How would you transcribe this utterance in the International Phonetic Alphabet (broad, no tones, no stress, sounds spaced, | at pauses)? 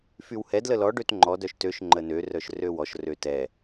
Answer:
f y w h ɛ d l ə l ɔ ɖ ø t ŋ͡ǃ ɔ d œ ʃ t ø ʃ ŋ͡ǃ ə n ø r œ ʃ r ø w ɔ ʃ r ø t ɛ